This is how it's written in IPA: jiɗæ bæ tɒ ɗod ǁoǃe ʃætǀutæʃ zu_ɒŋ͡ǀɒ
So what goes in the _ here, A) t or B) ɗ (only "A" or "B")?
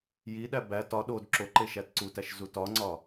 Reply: A